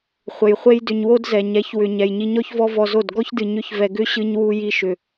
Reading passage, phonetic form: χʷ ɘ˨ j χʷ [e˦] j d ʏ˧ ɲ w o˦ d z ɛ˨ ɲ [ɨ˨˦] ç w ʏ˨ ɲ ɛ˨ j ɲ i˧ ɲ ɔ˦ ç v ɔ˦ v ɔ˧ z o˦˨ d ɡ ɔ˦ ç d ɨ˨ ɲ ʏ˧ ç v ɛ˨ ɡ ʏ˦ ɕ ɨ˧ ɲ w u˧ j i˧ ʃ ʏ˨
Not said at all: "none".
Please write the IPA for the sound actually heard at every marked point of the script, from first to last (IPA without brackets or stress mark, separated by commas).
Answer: e˦, ɛ˨˦